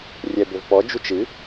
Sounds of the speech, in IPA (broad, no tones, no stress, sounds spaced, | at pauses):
rʲ ɛ b ɵ v p ɔ d͡ʒ u t͡ʃ ɨ